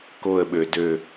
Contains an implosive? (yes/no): yes